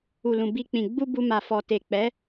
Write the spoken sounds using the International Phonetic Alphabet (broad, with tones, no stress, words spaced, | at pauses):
u˨lũ˨ bi˧k͡pĩ˨ ɡ͡bu˧ bu˧ma˨fɔ˨ te˨k͡pɛ˨˦